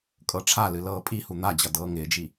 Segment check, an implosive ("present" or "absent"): absent